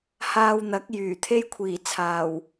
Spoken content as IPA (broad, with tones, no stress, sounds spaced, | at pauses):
h aː˧ w n̪ ɐ˨˥ k̚ j yː˨˩ t̪ʰ e˥ j kʷʰ iː˨˩ t͡sʰ aː˨˩ w